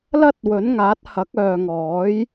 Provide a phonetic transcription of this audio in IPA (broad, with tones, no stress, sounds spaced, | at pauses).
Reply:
l ɐ˥ t̚ w ɵ˨˥ n ŋ aː˨˥ t̚ h ɐ˨˥ k̚ œː˨ ŋ ɔː˨˥ j